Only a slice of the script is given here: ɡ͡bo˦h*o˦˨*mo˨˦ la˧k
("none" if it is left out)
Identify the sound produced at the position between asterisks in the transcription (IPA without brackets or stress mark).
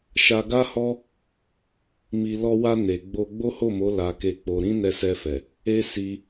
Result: o˦˨